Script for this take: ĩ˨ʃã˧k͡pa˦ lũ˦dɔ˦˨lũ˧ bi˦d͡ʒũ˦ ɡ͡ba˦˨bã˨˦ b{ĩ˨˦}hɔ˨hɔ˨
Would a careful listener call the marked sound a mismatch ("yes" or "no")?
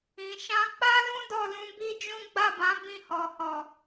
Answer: yes